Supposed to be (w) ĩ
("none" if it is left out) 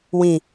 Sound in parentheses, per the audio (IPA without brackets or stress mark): w